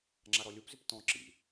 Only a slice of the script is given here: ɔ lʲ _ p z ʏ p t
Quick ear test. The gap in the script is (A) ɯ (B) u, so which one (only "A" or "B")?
B